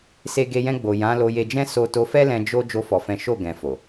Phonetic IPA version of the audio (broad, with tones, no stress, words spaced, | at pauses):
se˧ɡe˧ jɛ̃˧ɡ͡bo˨ jã˨˦lo˧je˧d͡ʒɛ̃˦ so˧ to˧fɛ˦lɛ̃˧ d͡ʒo˦ d͡ʒo˧fɔ˨fɛ̃˨˦ ʃo˦˨ɡɛ̃˨ fo˨